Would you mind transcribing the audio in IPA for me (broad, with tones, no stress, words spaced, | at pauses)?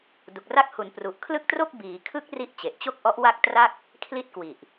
du˨˩k̚ra˦˥k̚hu˩˦n pru˨˩ʔkʰlɯ˥˩k̚tro˥˩k̚ biː˩˦kʰɯ˦˥k̚ ri˦˥ʔt͡ɕe˨˩ʔt͡ɕo˥˩k̚ʔɔ˦˥ʔ wa˥˩k̚ tra˥˩k̚ | kʰli˥˩t̚kwi˨˩ʔ